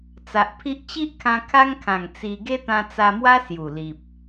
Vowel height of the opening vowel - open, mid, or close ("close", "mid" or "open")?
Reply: open